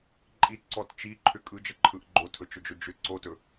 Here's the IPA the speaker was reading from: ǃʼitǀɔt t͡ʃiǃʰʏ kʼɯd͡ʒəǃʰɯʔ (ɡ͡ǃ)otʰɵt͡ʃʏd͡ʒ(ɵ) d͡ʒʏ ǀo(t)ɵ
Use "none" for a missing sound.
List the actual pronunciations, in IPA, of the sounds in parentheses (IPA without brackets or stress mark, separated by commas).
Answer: ɡ͡ǃ, ɵ, t